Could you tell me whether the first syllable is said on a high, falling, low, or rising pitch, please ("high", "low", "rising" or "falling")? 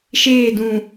falling